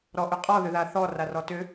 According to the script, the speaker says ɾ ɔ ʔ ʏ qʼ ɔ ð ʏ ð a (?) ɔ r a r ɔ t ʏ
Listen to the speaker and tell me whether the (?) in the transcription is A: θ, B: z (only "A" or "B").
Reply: A